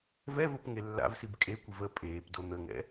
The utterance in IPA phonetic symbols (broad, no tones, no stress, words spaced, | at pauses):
vɛvop ŋelːa̰vsib kʼekʷɨv ə pʼeːpdo n̪əŋɛ̰